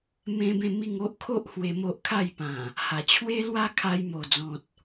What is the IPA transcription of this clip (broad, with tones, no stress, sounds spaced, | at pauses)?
m ẽ˦ b ẽ˥˧ m i˥˧ ŋ o˦ ʔ kʰ o˦ ʔ h w e˧ m o˦ ʔ kʰ a˥˧ j p ã˨˩ | h a˨˩ t͡ɕʰ w e˦ l w a˦ kʰ a˧ j m o˨˩ d͡z ɔ̃˨ t̚